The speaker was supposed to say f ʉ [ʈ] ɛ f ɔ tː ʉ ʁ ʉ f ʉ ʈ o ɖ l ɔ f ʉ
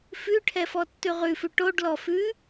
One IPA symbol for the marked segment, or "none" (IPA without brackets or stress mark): ʈʰ